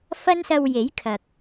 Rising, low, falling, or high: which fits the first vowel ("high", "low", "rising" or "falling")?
high